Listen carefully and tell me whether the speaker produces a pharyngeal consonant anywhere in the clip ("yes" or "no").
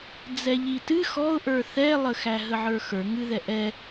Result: yes